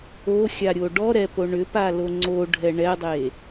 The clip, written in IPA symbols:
o xʲ a ɾʲ o ɖ ɔ ɾ ɛ p o ɳ ʏ p a l o ŋ͡ǀ o ɖʱ ɛ ɳ ɛ dˤ e

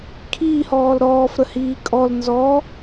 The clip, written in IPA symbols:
kʰ iː h ɔː l ɾ ɔː f ɾ ə h iː kʼ ɔ l n z ɔ

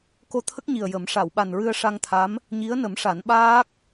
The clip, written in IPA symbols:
k o˧ t̪ʰ ə˦˥ k̚ ɲ i˨˩ ə̯ j ə˨˩˦ m ʂ a˨˩˨ w ɓ a˨˩ n ɹ ɨ˧ ə̯ ʂ a˧ ŋ t̪ʰ a˧˥ m | ɲ i˧˥ ə̯ n ə˨˩˦ m ʂ a˨˩˦ n ɓ aː˦˥ k̚

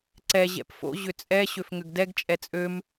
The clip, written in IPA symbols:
ǀ ɛ ʑ ɛ̰ p f o̰ ʑ ʏ t͡sʼ ɛ ɕ ø f ŋ ʏ ɡ d ɛ ɡ t͡ʃʼ ɛ t͡sʼ ø m

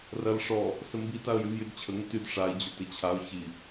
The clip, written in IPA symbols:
r ɐ l ʂ ɔ | s ə m b i t a ə̯ j y v j y d t͡ɕʰ ə ŋ ʏ t y d ʂ a ɪ̯ d͡ʑ ʊ t ɪ t͡ɕʰ a ʊ̯ ç i

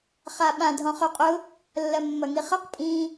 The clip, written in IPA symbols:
χ a ɓ ã dʱ ɔ̃ χ ɵ qʼ ʊ | lː ɐ mː ɐ ŋ i χ ɐ q pʼ ĩ

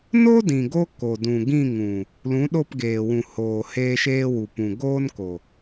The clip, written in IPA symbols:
n o˦ d ĩ˨ ɡ o˧ k o˨ d ũ˨ ɡ ĩ˦˨ ŋ ũ˨ | l ũ˨˦ ɗ o˦˨ p ɡ eː˨ w ũ˨ h oː˨ h eː˦ ʃ eː˦ w u˨ p ũ˨ ɡ oː˦ n k o˨

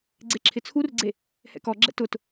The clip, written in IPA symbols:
ɡ͡ǀ e ǁʰ ɪ t͡sʰ u r ɡ͡ǀ e | h ɛ̰ k ɔ ɡ͡ǁ ɛ̰ t ʊ t

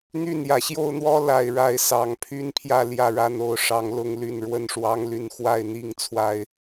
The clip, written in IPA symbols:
n̪ y˥˨ n j ä˩ ɕ j o˥˨ ʊ̯ n̪ w ɔ˦ l a˨˩ ɪ̯ ɻ a˥˨ ɪ̯ s ɑ˨˩ ŋ pʰ y˦ n pʰ j ä˥˨ l j ä˥˨ ɻ a˥˨ n o˥˨ ʊ̯ ʂ ɑ˨˦ ŋ l ʊ˦ ŋ l y˥˨ n ɻ w ə˥˨ n ʂ w ɑ˦ ŋ l y˥˨ n x w a˥˨ ɪ̯ n̪ i˥˨ ŋ t͡sʰ w a˨˩ ɪ̯

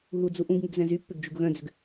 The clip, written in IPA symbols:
ɦ u d͡z u ʔ ũ ɡ ŋ y ɡ z ɛ̃ z y pː ʏ ɡ d͡ʒ u ɡ ɣ œ̃ d͡z ʏ ɡ

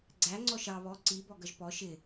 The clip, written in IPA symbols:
ɡ͡ǀ æ ŋ͡ǀ ɔ ʃ ɑ β ɔ ǀ i b ɔ ɡ ʌ ʒ p ɔ ʃ ɪ

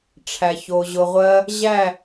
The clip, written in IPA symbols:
ʈ͡ʂʰ æ˨ ç o˨ ʑ ʊ˧ ʁʷ ɜ˦ | ʑ æ˦˨

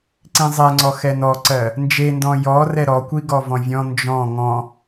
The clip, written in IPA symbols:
ǀ ĩ zˤ ɛ ŋ͡ǀ ɔ x ɛ n ɔ ǀ ɜ | n d͡ʒ e n d ɔ̃ j ɔ r ɛ ɾ ɔ kʷ i ɡ ɔ v ɔ̃ vʲ ɔ̃ n d͡ʒ ɔ̃ ŋ ɔ̃

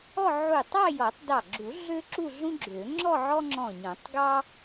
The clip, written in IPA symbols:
ɔ˥˧ ʕ u˧˩ tˤ ɑ˥˧ j ɔ˨˩˦ tˤ d ɑ˧˩ ɡ͡ǁ u˨˩˦ ɮ ø˥ ǁ u˥˧ ɮ ũ˥ ɡ͡ǁ ø˨˩˦ ŋ͡ǁ ɔ˥˧ ʕ ɔ˥ ŋ͡ǁ ɔ̃˧˩ ɲ ɔ̃˨˩˦ tˤ ɡ ɑ˥

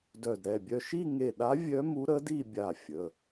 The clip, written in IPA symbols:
d œ˧˩ d ɾ ɛ˩˧˩ bʲ œ˥˧ ʃ i˥˧ ŋ e˧˩ ɗ a˧˥ vʲ œ˧˥ m u˧˥ ɾ ə˧˥ d i˥˧ bʲ a˧˩ fʲ ə˩˧˩

